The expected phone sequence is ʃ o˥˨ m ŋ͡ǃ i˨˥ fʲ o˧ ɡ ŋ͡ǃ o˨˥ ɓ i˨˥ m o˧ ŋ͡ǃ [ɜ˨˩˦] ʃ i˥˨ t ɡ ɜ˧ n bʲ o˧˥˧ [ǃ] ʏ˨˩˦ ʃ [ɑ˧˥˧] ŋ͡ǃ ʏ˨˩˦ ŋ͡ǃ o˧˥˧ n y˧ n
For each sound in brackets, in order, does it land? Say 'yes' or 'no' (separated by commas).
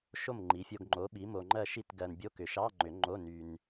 no, no, yes